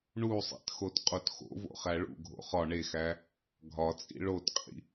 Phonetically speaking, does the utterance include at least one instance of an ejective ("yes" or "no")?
yes